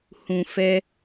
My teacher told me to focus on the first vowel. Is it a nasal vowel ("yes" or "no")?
yes